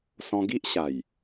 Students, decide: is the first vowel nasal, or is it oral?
nasal